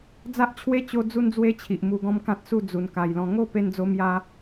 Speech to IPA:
d͡z a˦ ʔ t͡ɕʰ w e˦ t͡ɕ o˦ d͡z u˦ n d͡z w e˦ t͡ɕʰ i˨ ʔ m u˧ ɡ ɔ̃˦ m k ã˦ t̚ s u˥˧ d͡z u˨˩ n k a˨˩ j l ɔ̃˧ ŋ o˥˧ p e˧ n d͡z o˧ m j a˧

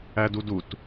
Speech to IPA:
æ d u d u t

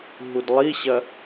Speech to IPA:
ɦ u d lˠ i ɕ ɐ

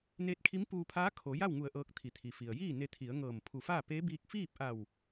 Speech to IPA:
n eː˧˥ t̚ kʰ i˧˥ m p uː˧ pʰ aː˧˥ kʰ o˩˧ j a˥˨ w ŋ u˧˩ ə̯ ʔ ɤː˧ k̚ t̪ʰ i˩˧ t̪ʰ i˩ f i˩ ə̯ j iː˥˨ n e˧ t̪ʰ i˩˧ ə̯ ŋ ɤː˧˩ m pʰ u˧˩ f aː˥˨ p e˧˥ b iː˧ k̚ f iː˥˨ p̚ ʔ a˧˩ w

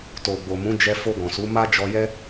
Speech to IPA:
t o˨ ɡ͡b o˨ m ũ˨˦ d͡ʒ ɛ˧ f o˧ ɡ ɔ̃˨ s u˨˦ m a˦ d͡ʒ ɔ˧ j ɛ˦

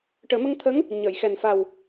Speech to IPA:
ʈ əː˨˩˦ m ə˧ ŋ t̪ʰ ə˧˥ ŋ | ɲ əː˨˩˨ j x ɛ˨˩ n f a˨˩ w

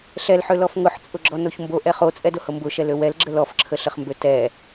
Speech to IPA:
ɬ ɛ l ħ ø l ɔ f ŋ ʊ ħ t͡sʼ ʊ ɡ͡ǁ ɔ n o ç m b o ʔ ɛ χ o t͡sʼ ɛ d ʊ h ʊ m b ʊ ʃ ɛ l ø w ɛ l ɡ͡ǁ ə l ɔ f ǁʰ ə ɬ ə χ m b ø t ɛ

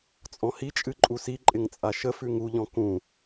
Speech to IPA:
t͡sʼ ɔ̃ h i t͡ʃʼ ɨ ǃʼ u s i ǃʼ ɪ ŋ t͡sʼ a ʃ ə f ʉ ŋ u ʎ ɔ̃ k ũ

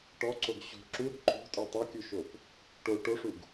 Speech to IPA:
ʈ ɔ ǀ o ɡ ɕ o̤ ǁ u ɾ o̤ ǃ o̤ tʼ ə˞ tˤ e kʲ u ʃ o p | ʈ o ʈ o ʂ u ɡ

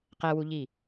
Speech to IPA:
q ɛ w u ʎ i

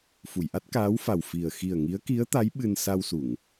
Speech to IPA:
f u˨˩˨ j ʔ a˦˥ t̚ k aː˧˥ w f a˨˩ w f i˨˩ ə̯ x i˨˩ ə̯ ŋ i˧˥ ə̯ k i˧˥ ə̯ t̪ a˧˥ j ɓ ɨ˧ n s a˧ w s u˨˩˨ ŋ

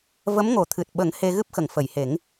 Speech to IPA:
v ə˧˥ m ŋ o˨˩˦ t̪ʰ ɨ˨˩ t̚ ɓ ə˨˩˦ ŋ h e˧ ɣ ɨ˦˥ p̚ x ə˨˩˨ ŋ f ə˨˩˨ j h e˨˩˦ ŋ

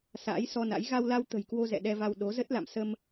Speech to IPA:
s a̰ː˧˥ j s ɔ˧ n a̰˧˥ j ɣ a˧ w l a˧ w t̪ ə̤˨˩ j k w o˧ z ɛ̰˧˨ ɗ ɛ˧ v a˧ w ɗ o˨˦ z ə˦˥ t̚ l a̰˧˨ m s ə˧ m

